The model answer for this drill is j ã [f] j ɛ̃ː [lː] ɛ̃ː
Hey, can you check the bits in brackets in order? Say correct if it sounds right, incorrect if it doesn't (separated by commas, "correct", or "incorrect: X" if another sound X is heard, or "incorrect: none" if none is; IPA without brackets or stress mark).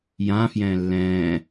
correct, correct